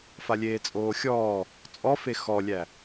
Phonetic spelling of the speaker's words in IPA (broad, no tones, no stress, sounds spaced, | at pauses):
f a lʲ eː t͡sʼ oː xʲ ɔː | t͡sʼ ɔ f e x ɔ lʲ æ